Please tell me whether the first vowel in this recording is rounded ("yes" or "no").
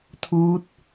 yes